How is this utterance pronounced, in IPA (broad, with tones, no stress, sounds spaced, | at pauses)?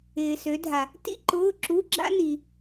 ɪː˨ s ø˨˦ dʱ a˨ | t ḭ˥ ǃ ʊː˧˥˧ ǁ u˧˥˧ ɡ͡ǁ a̰˥ n i˨